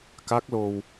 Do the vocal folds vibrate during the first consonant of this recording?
no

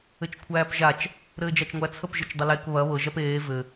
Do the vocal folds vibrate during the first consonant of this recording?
no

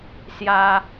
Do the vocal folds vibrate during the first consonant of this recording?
no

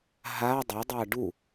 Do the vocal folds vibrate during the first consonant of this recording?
yes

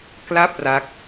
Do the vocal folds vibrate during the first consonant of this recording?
no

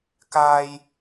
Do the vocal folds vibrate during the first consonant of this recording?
no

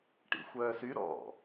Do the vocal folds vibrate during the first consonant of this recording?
no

